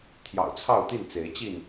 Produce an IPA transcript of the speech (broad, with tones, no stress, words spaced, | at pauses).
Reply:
t̪ʰjɑ̰˨˩ʊ̯t͡sʰɑ˥˨ʊ̯t̪i˥˨n t͡se˨˦ɪ̯t͡ɕi˥˨n